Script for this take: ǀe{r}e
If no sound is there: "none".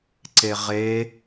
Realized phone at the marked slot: ʁ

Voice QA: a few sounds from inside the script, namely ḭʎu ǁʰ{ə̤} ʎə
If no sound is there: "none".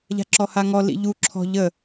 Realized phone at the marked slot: ɔ̤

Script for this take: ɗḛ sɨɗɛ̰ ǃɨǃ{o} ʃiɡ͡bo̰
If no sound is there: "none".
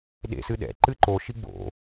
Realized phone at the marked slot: o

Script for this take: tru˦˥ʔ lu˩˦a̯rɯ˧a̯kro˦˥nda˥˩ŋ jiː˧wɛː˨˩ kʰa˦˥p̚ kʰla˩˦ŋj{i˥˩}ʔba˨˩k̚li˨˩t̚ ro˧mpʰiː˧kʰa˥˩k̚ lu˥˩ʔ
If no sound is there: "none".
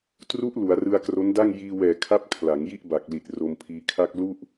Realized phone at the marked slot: i˥˩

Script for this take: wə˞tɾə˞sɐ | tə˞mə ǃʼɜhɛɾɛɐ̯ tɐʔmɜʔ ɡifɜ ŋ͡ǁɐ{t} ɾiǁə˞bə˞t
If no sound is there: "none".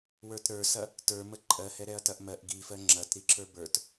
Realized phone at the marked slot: t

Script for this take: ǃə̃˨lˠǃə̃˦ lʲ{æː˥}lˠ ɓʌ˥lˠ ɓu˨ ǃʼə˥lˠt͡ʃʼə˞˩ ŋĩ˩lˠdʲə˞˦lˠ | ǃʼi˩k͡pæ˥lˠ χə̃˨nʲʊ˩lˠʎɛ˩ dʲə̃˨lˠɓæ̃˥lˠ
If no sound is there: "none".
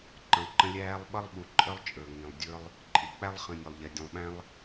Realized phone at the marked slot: æː˥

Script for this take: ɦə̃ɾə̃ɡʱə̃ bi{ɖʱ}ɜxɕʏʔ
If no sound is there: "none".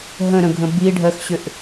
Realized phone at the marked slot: ɖʱ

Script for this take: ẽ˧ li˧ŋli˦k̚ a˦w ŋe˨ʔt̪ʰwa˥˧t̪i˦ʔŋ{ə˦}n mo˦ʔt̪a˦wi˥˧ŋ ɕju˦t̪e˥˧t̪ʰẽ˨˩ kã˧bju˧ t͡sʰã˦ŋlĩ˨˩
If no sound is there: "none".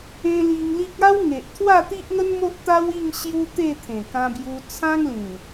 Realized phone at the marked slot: ə˦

